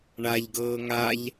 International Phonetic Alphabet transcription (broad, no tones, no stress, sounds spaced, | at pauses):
ɳ a ʎ ɡ ɤː ŋ a ʎ